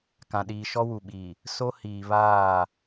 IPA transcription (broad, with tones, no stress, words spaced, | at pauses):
kã˨ɗiː˨ʃɔ˦ wu˨ɓiː˨ | so˦ hiː˨βaː˦˨